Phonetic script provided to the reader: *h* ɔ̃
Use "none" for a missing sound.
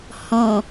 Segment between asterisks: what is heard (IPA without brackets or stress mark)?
h